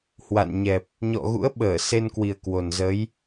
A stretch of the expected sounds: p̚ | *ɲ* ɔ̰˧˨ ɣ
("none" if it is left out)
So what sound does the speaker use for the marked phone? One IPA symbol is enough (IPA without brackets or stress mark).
ɲ